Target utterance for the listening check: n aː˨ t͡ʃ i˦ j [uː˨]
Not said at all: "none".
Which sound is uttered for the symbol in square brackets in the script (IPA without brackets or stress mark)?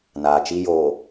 oː˨